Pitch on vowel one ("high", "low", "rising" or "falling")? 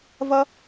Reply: high